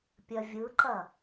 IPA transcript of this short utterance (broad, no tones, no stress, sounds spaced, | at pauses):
pʲ ɐ vʲ ɯ ǃ ɐ